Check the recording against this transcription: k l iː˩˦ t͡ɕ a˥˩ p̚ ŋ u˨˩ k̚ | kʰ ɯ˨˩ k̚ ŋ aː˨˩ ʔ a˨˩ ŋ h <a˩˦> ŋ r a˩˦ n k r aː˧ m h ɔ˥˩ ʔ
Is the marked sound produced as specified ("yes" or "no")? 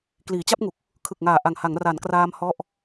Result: yes